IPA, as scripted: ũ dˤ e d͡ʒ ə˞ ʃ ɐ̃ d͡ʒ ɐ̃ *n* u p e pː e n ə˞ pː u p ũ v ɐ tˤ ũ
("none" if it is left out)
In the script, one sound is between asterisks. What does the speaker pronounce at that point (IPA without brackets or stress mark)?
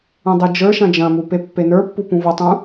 m